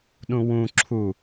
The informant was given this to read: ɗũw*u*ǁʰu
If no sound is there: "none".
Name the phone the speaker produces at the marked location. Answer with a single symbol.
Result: ũ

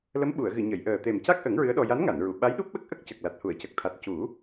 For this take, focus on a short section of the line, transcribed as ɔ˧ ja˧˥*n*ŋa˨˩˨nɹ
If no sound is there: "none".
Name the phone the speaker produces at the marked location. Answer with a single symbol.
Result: n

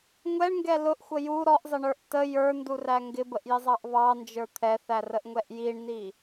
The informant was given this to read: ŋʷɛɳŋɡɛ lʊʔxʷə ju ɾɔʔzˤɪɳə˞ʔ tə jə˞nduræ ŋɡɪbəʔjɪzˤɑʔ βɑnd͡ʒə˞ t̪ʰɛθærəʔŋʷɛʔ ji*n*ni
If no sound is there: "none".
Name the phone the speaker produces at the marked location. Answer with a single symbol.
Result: ɳ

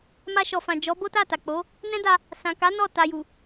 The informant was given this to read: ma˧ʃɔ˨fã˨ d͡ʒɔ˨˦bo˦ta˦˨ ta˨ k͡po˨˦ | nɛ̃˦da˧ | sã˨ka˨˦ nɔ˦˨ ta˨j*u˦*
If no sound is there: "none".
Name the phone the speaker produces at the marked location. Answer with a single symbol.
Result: u˨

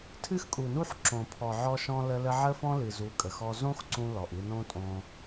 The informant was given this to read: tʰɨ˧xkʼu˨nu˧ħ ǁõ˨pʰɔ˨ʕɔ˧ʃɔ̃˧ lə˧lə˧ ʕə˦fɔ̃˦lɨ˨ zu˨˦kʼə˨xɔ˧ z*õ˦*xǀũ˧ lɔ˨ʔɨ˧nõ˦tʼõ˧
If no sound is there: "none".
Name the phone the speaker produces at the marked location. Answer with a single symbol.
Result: õ˦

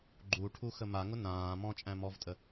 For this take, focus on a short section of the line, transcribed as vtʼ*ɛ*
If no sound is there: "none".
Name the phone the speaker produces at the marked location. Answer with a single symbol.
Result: ə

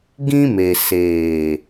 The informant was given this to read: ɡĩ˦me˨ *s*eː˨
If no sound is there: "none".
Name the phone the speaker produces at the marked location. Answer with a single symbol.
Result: s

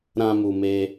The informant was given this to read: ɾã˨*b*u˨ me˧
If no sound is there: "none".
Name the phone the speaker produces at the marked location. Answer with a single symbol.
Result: m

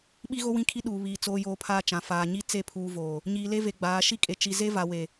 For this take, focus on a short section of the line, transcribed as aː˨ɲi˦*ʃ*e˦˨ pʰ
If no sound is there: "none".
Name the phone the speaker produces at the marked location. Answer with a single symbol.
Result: t͡s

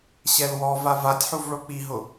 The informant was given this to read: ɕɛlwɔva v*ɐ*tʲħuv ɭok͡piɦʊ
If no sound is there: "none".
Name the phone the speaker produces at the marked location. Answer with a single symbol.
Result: a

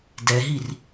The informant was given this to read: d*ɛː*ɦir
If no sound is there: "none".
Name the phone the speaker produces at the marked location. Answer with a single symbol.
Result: ɛ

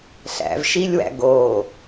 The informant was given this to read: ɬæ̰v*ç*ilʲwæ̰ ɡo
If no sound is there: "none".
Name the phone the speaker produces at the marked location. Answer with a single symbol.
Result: ʃ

